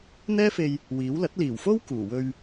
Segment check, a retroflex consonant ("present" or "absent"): absent